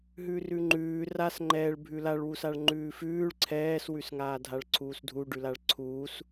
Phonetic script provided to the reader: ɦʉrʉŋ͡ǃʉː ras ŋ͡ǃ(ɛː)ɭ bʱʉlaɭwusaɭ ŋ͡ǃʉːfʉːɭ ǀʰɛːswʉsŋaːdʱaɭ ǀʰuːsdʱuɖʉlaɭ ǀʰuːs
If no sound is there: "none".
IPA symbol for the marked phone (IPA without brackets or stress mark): ɛː